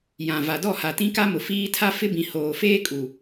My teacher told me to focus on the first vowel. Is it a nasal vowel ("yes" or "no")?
yes